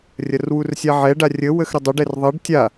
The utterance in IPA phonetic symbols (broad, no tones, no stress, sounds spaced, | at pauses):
rʲ ɐ r w u r sʲ a ʕ ɛ ɖ a rʲ ə w ə x ɾ ə dˤ ʏ ɖ ɛ r ðˤ ɐ ɖ tʲ a